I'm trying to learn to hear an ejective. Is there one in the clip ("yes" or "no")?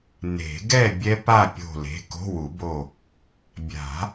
no